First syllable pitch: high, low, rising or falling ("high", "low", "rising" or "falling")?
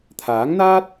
rising